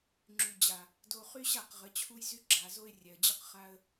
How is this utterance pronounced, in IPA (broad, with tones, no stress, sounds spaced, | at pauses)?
ŋ͡ǁ y˨ d͡ʑ a˨ | d o˧ χ y˦ ɕ a˦˨ q ʁ ə˨˦ t͡ɕʰ u˦ j z y˦ ɡ͡ǁ a˨ z o˦ ɪ̯ rʲ ɛ˨ ə̯ d͡ʑ ə˦ q χ a˦ ə̯